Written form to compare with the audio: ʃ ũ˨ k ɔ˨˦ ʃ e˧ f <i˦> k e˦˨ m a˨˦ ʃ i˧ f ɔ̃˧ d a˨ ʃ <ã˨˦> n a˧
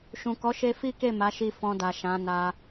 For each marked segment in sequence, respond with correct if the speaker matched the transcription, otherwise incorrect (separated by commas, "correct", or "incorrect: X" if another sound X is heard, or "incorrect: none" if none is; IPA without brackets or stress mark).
correct, correct